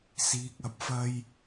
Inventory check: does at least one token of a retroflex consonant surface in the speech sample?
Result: no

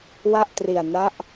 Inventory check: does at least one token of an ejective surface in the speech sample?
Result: no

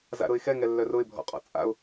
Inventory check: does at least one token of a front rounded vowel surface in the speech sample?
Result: yes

